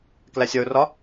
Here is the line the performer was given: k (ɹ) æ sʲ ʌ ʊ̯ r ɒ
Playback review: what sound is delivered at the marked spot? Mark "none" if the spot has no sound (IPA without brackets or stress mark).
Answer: l